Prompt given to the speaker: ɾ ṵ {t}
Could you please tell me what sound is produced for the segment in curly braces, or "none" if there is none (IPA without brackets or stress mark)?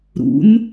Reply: n